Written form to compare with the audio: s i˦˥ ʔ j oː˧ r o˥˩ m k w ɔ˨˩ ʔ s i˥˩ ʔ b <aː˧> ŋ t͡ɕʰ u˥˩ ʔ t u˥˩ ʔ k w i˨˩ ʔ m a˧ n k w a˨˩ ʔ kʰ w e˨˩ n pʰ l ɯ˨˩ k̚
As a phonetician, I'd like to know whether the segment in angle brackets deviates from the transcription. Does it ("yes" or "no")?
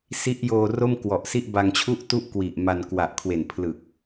yes